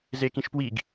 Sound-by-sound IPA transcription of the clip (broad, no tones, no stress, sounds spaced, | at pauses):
z e k ĩ ʃ p w i ɡ